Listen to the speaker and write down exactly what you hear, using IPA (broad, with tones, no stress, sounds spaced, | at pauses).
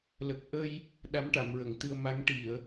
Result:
l ə˨˩ k̚ ʔ ə˧ j | ɗ a˧˥ m ʈ a˨˩˨ m ɹ ə˨˩˨ ŋ t̪ ɨ˧ ə̯ m a˧˥ ŋ ʈ i˨˩˨ ə̯